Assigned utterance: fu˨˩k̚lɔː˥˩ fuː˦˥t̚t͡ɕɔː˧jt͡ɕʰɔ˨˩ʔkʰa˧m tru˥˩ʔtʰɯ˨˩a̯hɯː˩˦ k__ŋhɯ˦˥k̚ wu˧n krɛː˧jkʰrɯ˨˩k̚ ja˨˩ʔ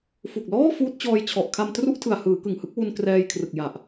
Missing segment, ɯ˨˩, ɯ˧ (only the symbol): ɯ˨˩